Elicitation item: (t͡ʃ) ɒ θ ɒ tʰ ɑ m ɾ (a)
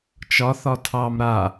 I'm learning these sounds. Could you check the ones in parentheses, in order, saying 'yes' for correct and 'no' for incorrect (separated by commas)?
yes, yes